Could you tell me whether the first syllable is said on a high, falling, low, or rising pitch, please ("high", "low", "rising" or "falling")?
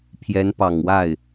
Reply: rising